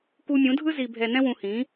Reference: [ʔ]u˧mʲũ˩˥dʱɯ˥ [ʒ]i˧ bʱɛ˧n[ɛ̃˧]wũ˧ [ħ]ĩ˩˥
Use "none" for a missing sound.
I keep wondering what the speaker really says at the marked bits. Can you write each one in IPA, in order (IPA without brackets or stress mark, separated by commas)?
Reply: k, z, ɛ̃˥, h